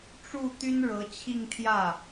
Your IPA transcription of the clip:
ʈ͡ʂ u˥˩ t̪ y˥ n ɻ ɤ˧˥ t͡ɕʰ i˥˧ ŋ t̪ʰ j ä˥˩

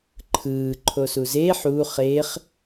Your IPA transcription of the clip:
ǃʰ ɯː ǃʰ o s u z e ħ u χ e χ

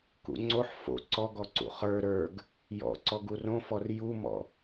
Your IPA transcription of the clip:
k ṵ ŋ͡ǀ o ħ f o̰ ǀ ɔ ɡ ɔ ǀ ṵ χ ə˞ ɾ ə˞ ɡ | j ɔ̰ ǀ ɔ ɡ u r õ f ɔ r j u m ɔ̰

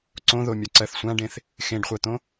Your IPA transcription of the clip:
ǀ õ ð o mʲ ɒ ǀ ɜ θ sʷ ã ɖ ẽ θ | x ẽ ɖ χʷ ɜ t̪ õ

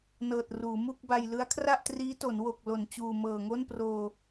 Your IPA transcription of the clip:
n ɤː˨˩ t̚ r uː˩˦ m u˥˩ k̚ b a˧ j l ɯ˦˥ a̯ kʰ r a˥˩ ʔ t r iː˦˥ t o˩˦ n w o˨˩ k̚ l o˨˩ n t͡ɕ uː˨˩ m ɤː˨˩ ŋ o˥˩ n p r oː˧

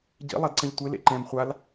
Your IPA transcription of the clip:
ɟ ḭ lˠ ɐ d ǀ ɐ̃ ʎ tʷ e l ḛ ǃ ɛ̃ m χʷ a l

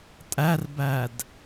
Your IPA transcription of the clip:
tʼ æ r b æ d

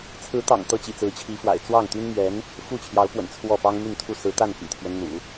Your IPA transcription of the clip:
t͡sʰ ɹ̩˧˥ t̪ ɑ̰˨˩ ŋ t̪ ɤ˥ t͡ɕ ḭ˨˩ t͡s ɹ̩˧˥ t͡ɕʰ i˧˥ f w a̰˨˩ ɪ̯ t͡s w ɑ˥˩ ŋ t̪ y˥ n m ɥ ɛ˧˥ n | f u˥˩ t͡ɕʰ j ɑ˧˥ ʊ̯ p w ə̰˨˩ n t͡sʰ w ɔ˥˩ p ɑ˥ ŋ m y˥˧ n t̪ʰ u˥˩ s ɹ̩˧˥ t̪ a˥˩ n p ḭ˨˩ t̪ʰ ɥ ɛ˦ n n̪ ṵ˨˩˦

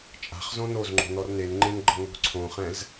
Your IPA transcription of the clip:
t͡ʃʼ a̤ χ z õ n o z ŋ͡ǃ o̤ n ɔ r n e n ŋ͡ǃ ẽ n ɡ͡ǃ ɤ ŋ o̤ ǀʰ õ χ ɛ̃ z

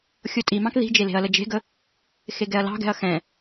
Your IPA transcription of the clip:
xʲ o tʼ i m ɑ̃ k ð i̤ d͡ʒ e l e̤ ɐ̯ l ə d͡ʒ e̤ ɡ ə | x e ɡ ɛ ɐ̯ l ɑ̤ ɡ ɛ̤ ɐ̯ x ɛ̃

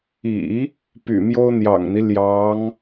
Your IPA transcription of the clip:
ḭ˨˩˦ | p y̰˨˩ m j o˥ ʊ̯ n̪ j ɑ̰˨˩ ŋ n̪ i˦ l j ɑ˧˥ ŋ

